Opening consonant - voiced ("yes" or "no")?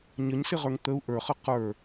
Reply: yes